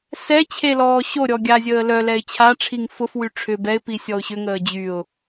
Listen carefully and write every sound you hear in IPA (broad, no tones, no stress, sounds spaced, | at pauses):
s ɛ t͡ɕʰ e l ɔː ɕ o ɾʲ ɔ ɡʲ a zʲ əː l œ l ɛ ɪ̯ t͡ɕʰ a ʈ͡ʂʰ i ŋ f ʊ f w y ʈ͡ʂʰ ʏ b ɛ ɪ̯ p i sʲ ɔ ʊ̯ ɕ ʏ ŋ əː d͡ʑ y ʊ̯